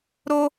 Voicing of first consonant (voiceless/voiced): voiced